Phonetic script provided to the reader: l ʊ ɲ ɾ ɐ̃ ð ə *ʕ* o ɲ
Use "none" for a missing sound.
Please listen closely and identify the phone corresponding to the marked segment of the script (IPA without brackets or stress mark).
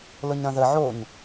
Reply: ʕ